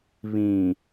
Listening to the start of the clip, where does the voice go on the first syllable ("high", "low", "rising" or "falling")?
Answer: low